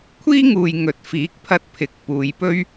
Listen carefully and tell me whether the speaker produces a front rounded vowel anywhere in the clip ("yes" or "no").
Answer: no